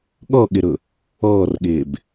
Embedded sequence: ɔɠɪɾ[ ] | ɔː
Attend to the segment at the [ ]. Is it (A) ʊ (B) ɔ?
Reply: A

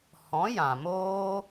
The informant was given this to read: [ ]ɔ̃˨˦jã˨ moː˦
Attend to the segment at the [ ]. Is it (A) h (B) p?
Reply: A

